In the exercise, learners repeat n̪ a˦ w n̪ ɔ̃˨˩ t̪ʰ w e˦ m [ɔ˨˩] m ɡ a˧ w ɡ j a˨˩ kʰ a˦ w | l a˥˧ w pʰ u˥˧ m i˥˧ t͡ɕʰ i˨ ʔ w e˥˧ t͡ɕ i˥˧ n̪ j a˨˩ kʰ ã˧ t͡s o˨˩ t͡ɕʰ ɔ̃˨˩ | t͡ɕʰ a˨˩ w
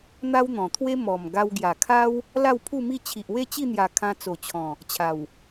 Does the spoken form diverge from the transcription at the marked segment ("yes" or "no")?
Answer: no